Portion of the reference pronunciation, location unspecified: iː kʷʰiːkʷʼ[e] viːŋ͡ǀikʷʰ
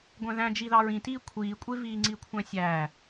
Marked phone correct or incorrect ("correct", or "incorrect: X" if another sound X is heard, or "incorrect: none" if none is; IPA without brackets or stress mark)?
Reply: correct